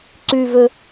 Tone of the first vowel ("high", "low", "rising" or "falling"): high